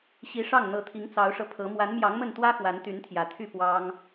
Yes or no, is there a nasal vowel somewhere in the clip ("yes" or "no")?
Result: no